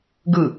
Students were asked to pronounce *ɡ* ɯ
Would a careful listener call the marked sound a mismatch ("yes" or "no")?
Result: no